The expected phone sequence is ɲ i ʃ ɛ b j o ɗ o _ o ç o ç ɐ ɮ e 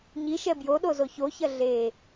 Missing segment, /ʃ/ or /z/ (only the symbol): z